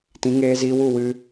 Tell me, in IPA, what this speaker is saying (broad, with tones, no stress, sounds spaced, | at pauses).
t ĩ˨˦ ŋ eː˧ z iː˧ w u˦˨ w ɨ˧